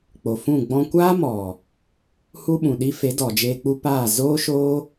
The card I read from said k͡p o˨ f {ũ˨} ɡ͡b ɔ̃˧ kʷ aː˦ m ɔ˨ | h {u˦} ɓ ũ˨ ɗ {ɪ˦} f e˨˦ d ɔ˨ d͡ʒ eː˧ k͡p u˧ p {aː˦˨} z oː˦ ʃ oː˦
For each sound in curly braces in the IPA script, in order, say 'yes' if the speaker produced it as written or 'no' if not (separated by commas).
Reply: no, yes, no, yes